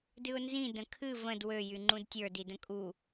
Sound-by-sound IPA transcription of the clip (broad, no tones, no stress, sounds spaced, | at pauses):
d ɨ ʊ̯ n z ĩ d ə̃ kʰ ɨ v ə̃ d w ø j y ŋ͡ǃ ũ d tʲ ə˞ d i d ə̃ kʼ u